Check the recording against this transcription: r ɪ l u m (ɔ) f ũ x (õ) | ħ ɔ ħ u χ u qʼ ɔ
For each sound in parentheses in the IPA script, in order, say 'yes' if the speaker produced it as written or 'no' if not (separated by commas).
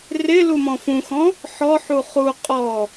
no, no